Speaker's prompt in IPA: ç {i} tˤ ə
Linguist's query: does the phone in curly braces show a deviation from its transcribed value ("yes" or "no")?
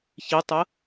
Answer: no